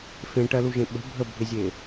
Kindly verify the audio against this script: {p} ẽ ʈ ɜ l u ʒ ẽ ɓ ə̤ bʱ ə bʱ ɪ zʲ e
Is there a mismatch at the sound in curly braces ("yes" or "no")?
yes